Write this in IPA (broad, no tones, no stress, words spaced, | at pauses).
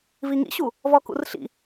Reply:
viŋḭɕu | vɔkṵrɬḭ